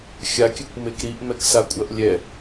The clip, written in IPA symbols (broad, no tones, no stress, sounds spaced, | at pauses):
xʲ a kʲ ɨ kʷ m e k ɾ i ʔ m ɛ k s a kʷʼ ɐ ʔ lʲ ɛ